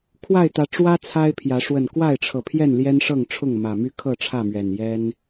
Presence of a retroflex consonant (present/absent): present